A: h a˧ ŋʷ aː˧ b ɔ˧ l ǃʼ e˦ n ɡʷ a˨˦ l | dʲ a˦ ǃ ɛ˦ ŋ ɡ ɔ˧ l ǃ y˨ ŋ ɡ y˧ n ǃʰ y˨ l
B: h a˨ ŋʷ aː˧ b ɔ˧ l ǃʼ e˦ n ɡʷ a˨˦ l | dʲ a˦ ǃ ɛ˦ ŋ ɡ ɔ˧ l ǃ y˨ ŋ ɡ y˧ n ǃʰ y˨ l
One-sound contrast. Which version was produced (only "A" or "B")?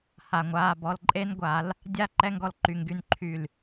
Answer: B